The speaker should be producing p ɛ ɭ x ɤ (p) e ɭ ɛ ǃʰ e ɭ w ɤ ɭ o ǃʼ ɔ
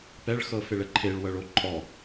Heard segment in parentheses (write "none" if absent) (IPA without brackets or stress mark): f